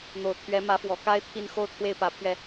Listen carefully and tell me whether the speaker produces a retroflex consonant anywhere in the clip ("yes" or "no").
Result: no